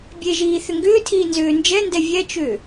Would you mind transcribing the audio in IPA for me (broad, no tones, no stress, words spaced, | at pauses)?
bʲeʒiː θʏŋɡʏːtʰiː nzʏːnd͡ʒɛndɛ vʲɛt͡ʃʏ